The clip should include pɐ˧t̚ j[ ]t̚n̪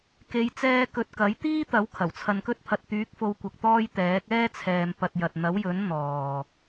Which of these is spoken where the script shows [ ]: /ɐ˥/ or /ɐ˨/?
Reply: ɐ˨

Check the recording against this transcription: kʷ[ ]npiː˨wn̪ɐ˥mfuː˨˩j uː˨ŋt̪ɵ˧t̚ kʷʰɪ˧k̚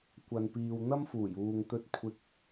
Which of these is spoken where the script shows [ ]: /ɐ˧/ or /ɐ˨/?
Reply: ɐ˨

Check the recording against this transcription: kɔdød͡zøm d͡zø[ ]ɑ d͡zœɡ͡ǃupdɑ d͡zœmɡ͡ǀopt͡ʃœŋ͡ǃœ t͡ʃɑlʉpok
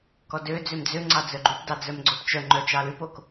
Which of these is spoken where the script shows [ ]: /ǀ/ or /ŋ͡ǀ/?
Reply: ŋ͡ǀ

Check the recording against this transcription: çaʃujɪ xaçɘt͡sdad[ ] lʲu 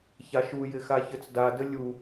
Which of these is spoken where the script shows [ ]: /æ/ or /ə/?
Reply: ə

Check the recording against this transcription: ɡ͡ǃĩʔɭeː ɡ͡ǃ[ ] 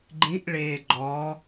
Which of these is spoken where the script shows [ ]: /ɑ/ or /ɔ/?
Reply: ɔ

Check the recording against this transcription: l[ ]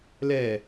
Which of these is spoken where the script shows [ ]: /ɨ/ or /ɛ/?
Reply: ɛ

